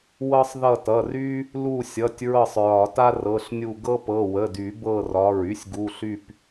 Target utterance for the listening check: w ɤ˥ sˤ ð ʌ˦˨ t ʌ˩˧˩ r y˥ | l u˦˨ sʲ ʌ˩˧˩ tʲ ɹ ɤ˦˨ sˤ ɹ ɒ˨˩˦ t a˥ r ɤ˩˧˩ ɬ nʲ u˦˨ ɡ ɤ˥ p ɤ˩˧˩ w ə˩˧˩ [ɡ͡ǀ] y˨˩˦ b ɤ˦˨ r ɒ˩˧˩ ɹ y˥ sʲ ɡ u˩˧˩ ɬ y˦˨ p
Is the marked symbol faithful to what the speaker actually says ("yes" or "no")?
no